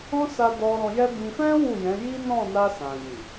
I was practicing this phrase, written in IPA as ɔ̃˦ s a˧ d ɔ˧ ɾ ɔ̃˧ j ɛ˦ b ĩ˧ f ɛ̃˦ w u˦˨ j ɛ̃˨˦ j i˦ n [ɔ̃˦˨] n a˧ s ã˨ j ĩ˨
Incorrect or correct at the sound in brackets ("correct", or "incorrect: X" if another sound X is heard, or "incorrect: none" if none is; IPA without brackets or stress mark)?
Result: correct